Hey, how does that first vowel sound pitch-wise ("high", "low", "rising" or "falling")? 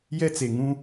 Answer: high